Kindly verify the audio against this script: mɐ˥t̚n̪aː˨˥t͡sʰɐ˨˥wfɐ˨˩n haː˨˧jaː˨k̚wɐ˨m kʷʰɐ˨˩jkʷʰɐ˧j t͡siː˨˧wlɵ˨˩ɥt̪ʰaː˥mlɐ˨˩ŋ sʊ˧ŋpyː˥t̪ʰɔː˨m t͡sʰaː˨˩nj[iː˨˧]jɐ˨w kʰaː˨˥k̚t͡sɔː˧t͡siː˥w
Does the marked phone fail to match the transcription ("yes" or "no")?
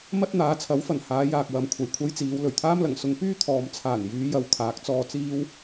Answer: yes